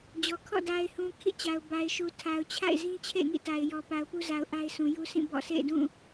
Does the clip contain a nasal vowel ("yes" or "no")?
yes